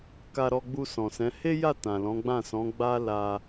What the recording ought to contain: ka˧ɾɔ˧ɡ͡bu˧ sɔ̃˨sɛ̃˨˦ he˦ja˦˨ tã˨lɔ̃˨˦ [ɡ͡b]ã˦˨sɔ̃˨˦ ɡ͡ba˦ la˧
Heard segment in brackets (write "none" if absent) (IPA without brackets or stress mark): ɡ͡b